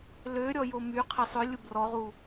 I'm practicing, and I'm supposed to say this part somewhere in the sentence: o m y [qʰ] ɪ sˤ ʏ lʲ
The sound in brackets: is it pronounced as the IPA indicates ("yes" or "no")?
yes